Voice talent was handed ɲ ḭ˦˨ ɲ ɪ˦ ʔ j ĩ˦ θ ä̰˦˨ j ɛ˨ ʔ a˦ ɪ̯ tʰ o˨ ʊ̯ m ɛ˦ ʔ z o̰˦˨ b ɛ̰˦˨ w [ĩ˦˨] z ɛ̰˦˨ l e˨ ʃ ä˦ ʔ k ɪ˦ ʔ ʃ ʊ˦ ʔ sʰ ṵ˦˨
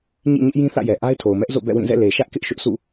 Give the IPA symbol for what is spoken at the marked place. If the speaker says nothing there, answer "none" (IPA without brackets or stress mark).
ĩ˦˨